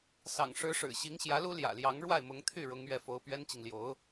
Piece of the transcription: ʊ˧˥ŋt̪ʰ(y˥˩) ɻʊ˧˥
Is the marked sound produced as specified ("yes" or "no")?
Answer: yes